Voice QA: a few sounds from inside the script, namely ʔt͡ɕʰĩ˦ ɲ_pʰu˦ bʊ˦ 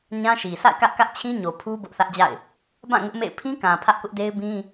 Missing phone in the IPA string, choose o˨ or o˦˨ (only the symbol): o˨